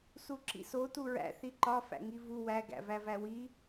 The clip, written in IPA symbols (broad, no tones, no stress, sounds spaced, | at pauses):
s u ǁ ḭ s o t u ɹ æ̰ θ i ǃ ɒ f æ̰ ŋ i v u w æ ɡ æ̰ v æ v æ w i